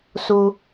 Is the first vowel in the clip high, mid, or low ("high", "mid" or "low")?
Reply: high